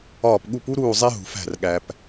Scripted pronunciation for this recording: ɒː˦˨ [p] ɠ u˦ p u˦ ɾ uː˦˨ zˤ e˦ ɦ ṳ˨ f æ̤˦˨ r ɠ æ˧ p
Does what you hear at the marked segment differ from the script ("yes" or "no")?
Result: no